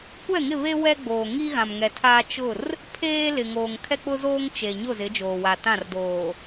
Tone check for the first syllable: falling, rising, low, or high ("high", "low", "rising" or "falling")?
falling